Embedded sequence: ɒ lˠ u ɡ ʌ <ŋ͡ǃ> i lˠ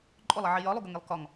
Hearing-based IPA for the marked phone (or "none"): ŋ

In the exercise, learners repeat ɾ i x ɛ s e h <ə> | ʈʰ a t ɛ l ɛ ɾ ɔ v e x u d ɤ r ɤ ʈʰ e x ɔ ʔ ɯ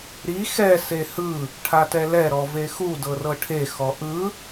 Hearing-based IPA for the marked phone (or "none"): ɯ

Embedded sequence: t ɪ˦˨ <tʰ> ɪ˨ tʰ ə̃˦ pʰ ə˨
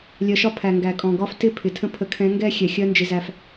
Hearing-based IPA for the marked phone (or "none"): pʰ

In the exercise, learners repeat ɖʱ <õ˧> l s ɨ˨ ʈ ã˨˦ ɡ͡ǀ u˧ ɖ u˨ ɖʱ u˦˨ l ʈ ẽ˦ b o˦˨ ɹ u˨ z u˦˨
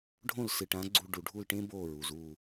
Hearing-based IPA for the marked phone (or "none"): õ˦˨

